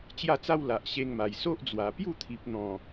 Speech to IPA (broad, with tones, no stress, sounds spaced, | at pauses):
t͡ɕ j a˥˧ t͡s a˦ w l a˨ ʔ ɕ e˧ ŋ m a˨˩ j s o˦ ʔ d͡z w a˨˩ p j u˥˧ t̪ʰ i˨ p̚ n̪ ɔ̃˨˩